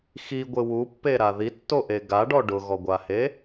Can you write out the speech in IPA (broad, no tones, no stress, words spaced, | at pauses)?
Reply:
xiɡʷɪ wupːeɾa ðitːoʔe ɡaɖɔ ɖʊɣɔɡʷahe